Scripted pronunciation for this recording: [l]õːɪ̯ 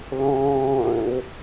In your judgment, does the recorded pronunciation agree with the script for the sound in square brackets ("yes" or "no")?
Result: yes